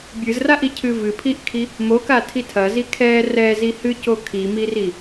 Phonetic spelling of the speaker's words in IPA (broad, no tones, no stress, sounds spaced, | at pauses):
bʲ ɨ z r a ʔ i cʰ ɨ v ɨ pʰ i ʔ kʰ i | m o k a tʰ i tʰ ɐ z i kʰ ɛ r ɛ z i h ɨ c o kʰ i m i r i